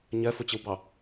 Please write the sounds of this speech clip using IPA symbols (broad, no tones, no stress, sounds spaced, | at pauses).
ɲ ɜ f ʊ t͡ɕ ɪ w b ɑ